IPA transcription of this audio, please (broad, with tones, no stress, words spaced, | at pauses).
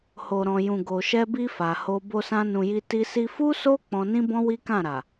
ho˨ɾɔ̃˨jũ˨ ɡo˨ʃɛ˧bi˧ fa˨ho˧ bo˧sã˧nũ˨ji˧ ti˧si˧ fu˦so˦ k͡pɔ̃˧nĩ˦bɔ̃˦ wi˦kã˦˨ɾa˨